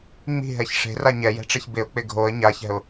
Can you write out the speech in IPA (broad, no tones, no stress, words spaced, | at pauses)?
ŋ͡mi̤ɦɛç ʂe̤ra ɲɛjɛ̤ʈ͡ʂeç bɪʊ̯k͡pɪ ɡʱoə̯ ɲaçɛ̤ʊ̯